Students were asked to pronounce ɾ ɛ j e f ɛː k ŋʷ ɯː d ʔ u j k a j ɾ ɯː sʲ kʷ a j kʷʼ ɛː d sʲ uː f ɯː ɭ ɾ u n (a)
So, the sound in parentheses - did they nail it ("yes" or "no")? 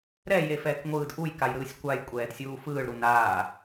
no